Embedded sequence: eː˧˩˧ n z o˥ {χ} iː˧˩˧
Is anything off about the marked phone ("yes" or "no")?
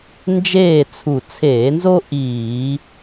yes